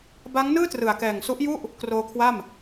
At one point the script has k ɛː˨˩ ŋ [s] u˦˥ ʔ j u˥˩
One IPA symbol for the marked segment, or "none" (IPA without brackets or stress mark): s